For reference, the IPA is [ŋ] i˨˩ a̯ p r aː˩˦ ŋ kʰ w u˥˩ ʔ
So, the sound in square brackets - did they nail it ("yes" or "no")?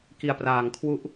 no